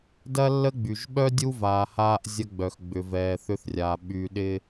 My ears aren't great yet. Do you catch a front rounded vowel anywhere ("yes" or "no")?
yes